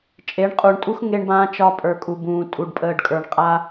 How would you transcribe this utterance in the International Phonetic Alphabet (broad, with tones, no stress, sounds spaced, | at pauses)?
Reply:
t͡ʃʼ e˨˦ ɳ qʼ uː˨ ɳ tʼ u˦ x ŋ e˧ ɳ b ãː˧ t͡ʃ ɒ˧ pʼ ə˞˨ kʼ u˨ b ũː˨ tʼ u˨ ɖ pʼ əː˨ ɖ kʼ ə˞˨ ɳ qʼ a˧